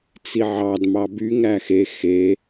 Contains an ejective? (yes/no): no